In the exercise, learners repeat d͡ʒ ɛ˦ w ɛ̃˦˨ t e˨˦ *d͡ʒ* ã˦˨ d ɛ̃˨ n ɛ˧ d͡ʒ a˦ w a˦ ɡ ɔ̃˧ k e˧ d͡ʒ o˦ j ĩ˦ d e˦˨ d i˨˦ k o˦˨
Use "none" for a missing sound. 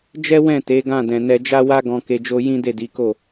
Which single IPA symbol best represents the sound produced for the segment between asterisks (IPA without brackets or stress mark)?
ɡ